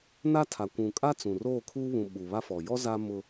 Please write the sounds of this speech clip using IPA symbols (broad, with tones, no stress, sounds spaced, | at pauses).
n a˦ tʰ a˨ kʷ ũ˨ kʼ a˦ t͡s ũ˨ r oː˦˨ kʰ uː˦ β ũ˨ ɓ u˨ β a˦ f ɔ˨ j ɔ˦ z a˦ m ʊ˦